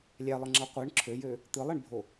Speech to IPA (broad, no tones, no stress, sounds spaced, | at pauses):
lʲ æ lˠ ɯ ŋ͡ǁ ɑ qʷ ɯ ɳ ǁʰ ø j ø | t̪ ɯ lˠ e ɳ bʱ o